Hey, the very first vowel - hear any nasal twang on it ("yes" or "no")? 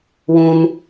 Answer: yes